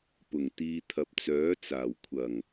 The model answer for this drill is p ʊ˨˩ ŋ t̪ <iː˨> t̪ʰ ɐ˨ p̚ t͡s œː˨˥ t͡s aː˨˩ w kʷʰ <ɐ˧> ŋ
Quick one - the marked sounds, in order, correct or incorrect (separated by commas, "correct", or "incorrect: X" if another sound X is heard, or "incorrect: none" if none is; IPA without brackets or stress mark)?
correct, incorrect: ɐ˨˩